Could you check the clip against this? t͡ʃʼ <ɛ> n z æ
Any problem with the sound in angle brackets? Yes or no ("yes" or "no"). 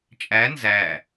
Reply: yes